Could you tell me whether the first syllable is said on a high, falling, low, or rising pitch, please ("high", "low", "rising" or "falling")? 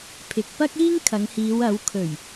low